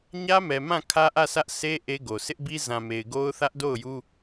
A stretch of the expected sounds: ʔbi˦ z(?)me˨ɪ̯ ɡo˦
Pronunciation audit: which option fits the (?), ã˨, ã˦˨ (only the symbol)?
ã˨